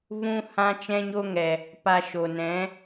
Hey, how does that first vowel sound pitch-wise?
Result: high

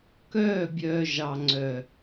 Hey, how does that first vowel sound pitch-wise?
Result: falling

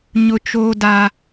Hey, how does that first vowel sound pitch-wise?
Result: high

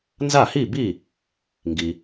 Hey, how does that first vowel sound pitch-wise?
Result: falling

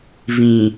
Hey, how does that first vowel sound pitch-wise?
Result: low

